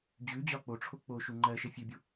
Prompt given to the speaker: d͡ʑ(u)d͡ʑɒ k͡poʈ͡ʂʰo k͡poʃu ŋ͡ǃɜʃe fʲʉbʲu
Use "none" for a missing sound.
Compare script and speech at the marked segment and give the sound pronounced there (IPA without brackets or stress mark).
ʉ